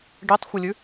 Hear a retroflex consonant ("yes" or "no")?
yes